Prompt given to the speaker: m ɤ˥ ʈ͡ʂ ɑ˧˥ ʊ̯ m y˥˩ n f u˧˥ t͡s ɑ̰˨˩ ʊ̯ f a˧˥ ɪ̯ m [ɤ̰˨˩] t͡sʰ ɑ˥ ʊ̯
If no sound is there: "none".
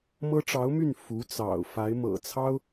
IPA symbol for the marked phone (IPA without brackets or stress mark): ɤ̰˨˩